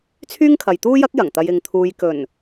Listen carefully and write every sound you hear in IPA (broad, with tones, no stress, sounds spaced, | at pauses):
t͡sʰ yː˥ ŋ kʰ ɐ˨ j t̪ uː˥ j ɐ˥ k̚ j ɐ˨˩ ŋ t̪ ɐ˧ j ɪ˨˧ ŋ t̪ʰ uː˧ j k ɵ˨˩ n